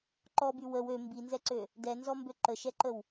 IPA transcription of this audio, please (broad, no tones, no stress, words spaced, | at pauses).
ǃɔby wəw ø mbinzɛǀø | dɛnzɔmbø ǃəʃɛǃəw